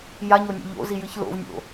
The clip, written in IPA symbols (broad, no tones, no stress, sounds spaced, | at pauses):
j a ɲ o nʲ a̰ ʎ o̰ z i j ɨ ç l o̰ v nʲ o̰